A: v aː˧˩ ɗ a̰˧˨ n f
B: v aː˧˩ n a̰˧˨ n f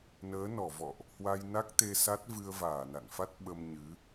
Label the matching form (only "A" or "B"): B